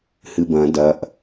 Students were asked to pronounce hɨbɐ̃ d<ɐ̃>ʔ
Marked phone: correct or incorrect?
incorrect